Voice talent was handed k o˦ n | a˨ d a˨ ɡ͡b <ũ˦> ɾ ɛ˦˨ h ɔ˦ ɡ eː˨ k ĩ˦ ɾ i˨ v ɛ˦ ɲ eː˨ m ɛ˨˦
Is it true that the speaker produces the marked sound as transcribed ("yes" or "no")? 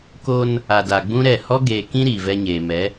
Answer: yes